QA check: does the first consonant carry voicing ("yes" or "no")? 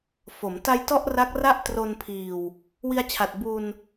no